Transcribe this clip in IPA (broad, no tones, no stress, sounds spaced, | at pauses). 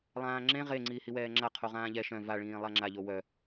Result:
lˠ ãː ŋ͡ǁ ẽ ʁ e ŋ͡ǀ iː h i w ɛː ŋ͡ǁ a qʰ o ʁ ãː ʎ ɛ ʃ œ̃ v a ɭ ĩː lˠ a ŋ͡ǁ a ʎ o w œ